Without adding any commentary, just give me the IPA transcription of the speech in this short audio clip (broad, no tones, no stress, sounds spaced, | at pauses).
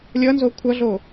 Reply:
lʲ ʌ n z o kʷʰ ʌ ɮ o